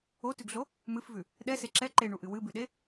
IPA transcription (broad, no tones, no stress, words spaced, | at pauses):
otʉɡɮo | mɨfvʉ | ɗɛse ǁɛ ǃeɳuʔɨ wɨbʉɗe